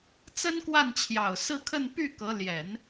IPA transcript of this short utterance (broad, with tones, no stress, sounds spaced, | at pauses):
t͡s ə˥ n k w a˥˩ n t͡ɕʰ j ɑ˨˩ ʊ̯ s ɹ̩˥˧ kʰ ə˥˧ n p y˥˩ k ɤ˧˥ l j ɛ˨˩˦ n